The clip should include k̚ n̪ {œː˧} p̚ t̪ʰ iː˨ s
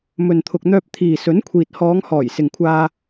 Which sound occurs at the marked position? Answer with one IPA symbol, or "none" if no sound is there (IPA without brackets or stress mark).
œː˧